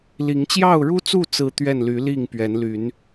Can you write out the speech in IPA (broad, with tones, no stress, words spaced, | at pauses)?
li˨˦ŋt͡ɕjɑ˥˨ʊ̯ɻu˦t͡su˥˨ t͡sɹ̩˦t̪ɥɛ˥˨n ly˨˦li˥˨ŋpɥɛ˨˦nly˨˦n